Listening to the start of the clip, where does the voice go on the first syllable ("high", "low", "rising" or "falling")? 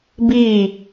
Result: falling